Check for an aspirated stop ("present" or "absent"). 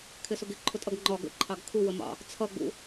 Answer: present